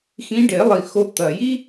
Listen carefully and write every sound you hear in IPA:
x ĩ˧˥ ɖ e˨˩˦ lˠ i˨˩ x o˧˥ t̪ ɐ˨˩ j i˥

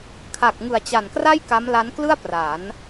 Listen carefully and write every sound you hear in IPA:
kʰ a˨˩ k̚ ŋ ɯ˨˩ a̯ t͡ɕ a˨˩ n k r a˥˩ j k a˦˥ m l a˦˥ n k l ɯ˥˩ a̯ p r a˩˦ n

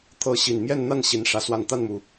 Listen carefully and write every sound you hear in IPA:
t̪ʰ ɤ˧˥ ɕ i˨˩ n m j ɛ˥˧ n n̪ a˥˩ n ɕ i˧˥ n ʂ ä˧˥ s w a˥˧ n t̪ a˥˩ n m u˩

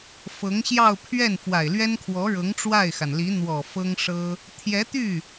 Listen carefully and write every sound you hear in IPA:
f ɤ˧˥ ŋ ɕ j ɑ˥˧ ʊ̯ pʰ ɥ ɛ˥˩ n f w a˨˩ ɪ̯ l ɥ ɛ˥ n kʰ w ɔ˧˥ ɻ ɤ˧˥ ŋ ʈ͡ʂ w a˥˩ ɪ̯ x a˩ n l i˧˥ n̪ w ɔ˨˩ f ɤ˥ ŋ ʂ ɤ˥ | t̪ʰ j ɛ˧˥ t̪ y˥˩

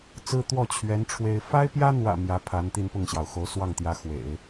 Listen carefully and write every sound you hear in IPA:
t͡s ɹ̩˥ t̪ w ɔ˥˩ t͡ɕʰ ɥ ɛ˧˥ n ʈ͡ʂʰ w e˥ ɪ̯ f a˥ ɪ̯ p j ä˥ n̪ w ä̰˨˩ m j ä˧˥ pʰ a˧˥ n t̪ i˥˧ n p ʊ˥˩ ŋ ɕ j ɑ˩ ʊ̯ x o˧˥ ʊ̯ s w ɑ˥˩ ŋ t̪ j ä˧˥ x w ḛ˨˩˦ ɪ̯

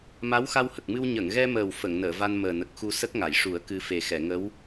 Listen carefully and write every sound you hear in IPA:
m a˧˥ w x a˧ w h ə˨˩ k̚ m ɨ˧ w ɲ ə˨˩˨ ŋ ɣ ɛ˧ m əː˨˩ w f ə˨˩˨ ŋ n əː˨˩˨ v a˧ n m əː˨˩ n ə˨˩ k̚ x u˧ s ə˦˥ k̚ ŋ a˨˩˨ j ʂ u˨˩˦ ə̯ k ɨ˧ f e˨˩ x ɛ˨˩˨ ŋ ə˧˥ w

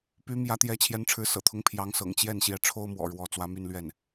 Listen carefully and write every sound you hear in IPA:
p y˧˥ m j ä˧˥ t̪ j ɛ˧˥ t͡ɕʰ j ɛ˧˥ n ʈ͡ʂʰ ɻ̩˧˥ s ɤ̰˨˩ t̪ʰ ʊ˧˥ ŋ pʰ j ɑ˧˥ ŋ s ɤ̰˨˩ ŋ t͡ɕ j ɛ˥˩ n ɕ j ɛ˧˥ ʈ͡ʂʰ o˥ ʊ̯ m w ɔ̰˨˩ ɻ w ɔ˧˥ t͡s w ä˧˥ m y˥˧ n l ɥ ɛ˥˩ n

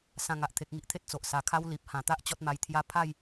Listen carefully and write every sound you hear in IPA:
s ã˧ ŋ a˨ ʔ t̪ʰ e˨ k̚ ŋ i˨ ʔ t̪ʰ e˦ t̚ t͡s o˨ ʔ s a˨˩ kʰ a˦ w l i˨ p̚ h ã˨˩ t̪ a˦ ʔ t͡ɕ ɔ˦ t̚ m a˧ j t̪ʰ j a˦ pʰ a˥˧ j

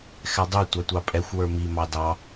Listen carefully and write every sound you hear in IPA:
x ɛ dˤ u tʷ ɑ tʷ ɑ pʼ ɛ xʷ w ə˞ m i m ɑ d ɑ

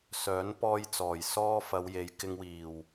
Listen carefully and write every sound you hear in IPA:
s œː˨˥ n p ɔː˧ j t͡s ɔː˨˩ j s ɔː˧ f ɐ˨˧ w j e˨ j k ɪ˨ ŋ w iː˨˩ w

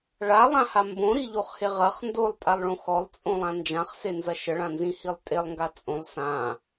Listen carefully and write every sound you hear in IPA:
ɭ a lˠ ã h a m b õ ɾ i ʎ o χ h e ʁ ɐ χ n d o lˠ tʼ a lˠ ɭ õ x ɔ lˠ t͡sʼ õ lˠ ã n d͡ʒ ã χ s e n z ɐ ʃ ə ɭ ã n z ĩ h i lˠ tʼ e lˠ ŋ ɡ a t͡sʼ õ lˠ s ã

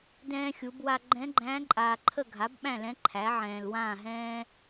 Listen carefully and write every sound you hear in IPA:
d ɛ̃ː˥ xʲ u˩˥ b w a˥ ɡ͡ǃ ɛ̃˧˥ ɡ͡ǃ æ̃ː˧˥ ǃʼ aː˨ ǃʰ ə˥˨ ɡʱ a˩˥ b ɓ æ̃˥˨ l ɛ̃˧˥ ǃʰ æ˩˥ ʕ ɛ̃ː˨ l w ãː˥˨ ɦ ɛ̃ː˥

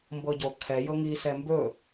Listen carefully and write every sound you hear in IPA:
m b ɤ ɟ o kʰ ɛ j ɤ ŋ i s ɛ m b ɵ

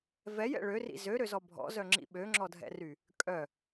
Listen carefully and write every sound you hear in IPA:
v ɛ j ɛ̰ ɭ ø r ḭ z ø ɾ ø z ɔ bʱ ɔ̰ z œ ŋ͡ǁ ḭ ɓ ø ŋ͡ǁ ɔ dʱ ɛ̰ r y | kʼ œ

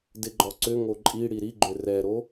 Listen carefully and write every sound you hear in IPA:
d ɪ ɡ͡ǃ ɔ ǀ ʏ ŋ o ǃʼ i ɽ i ɾ i ɡ͡ǃ ʏ r ɛ ɾ o

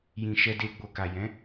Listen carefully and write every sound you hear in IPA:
j ĩ˨ ʃ ɛ˧ d e˧ ɡ͡b o˨ k a˨ j ɛ̃˨˦

